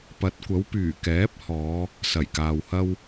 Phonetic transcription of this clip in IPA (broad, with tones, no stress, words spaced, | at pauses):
pɐ˨˥t̚kʷɐ˨˥wpyː˨˩ kɛː˨˥p̚hɔː˨˧ | sɐ˨˩jkaː˨whɐ˥w